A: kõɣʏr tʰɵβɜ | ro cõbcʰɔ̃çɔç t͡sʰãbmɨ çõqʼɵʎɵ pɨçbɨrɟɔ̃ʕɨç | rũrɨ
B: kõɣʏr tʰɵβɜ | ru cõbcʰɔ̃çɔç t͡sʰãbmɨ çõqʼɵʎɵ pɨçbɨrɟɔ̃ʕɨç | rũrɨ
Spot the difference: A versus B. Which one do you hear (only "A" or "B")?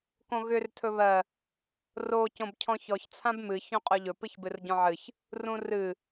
A